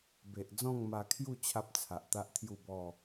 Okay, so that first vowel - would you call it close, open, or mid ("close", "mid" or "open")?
mid